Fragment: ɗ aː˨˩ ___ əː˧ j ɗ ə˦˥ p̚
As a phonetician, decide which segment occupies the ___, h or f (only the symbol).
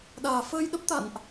f